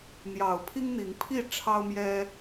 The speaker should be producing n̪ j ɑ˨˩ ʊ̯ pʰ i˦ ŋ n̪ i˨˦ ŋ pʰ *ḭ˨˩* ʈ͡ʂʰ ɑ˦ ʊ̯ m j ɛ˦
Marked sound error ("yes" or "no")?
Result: yes